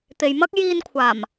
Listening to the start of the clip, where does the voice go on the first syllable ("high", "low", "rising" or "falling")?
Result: low